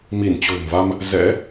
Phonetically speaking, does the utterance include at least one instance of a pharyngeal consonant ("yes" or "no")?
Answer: no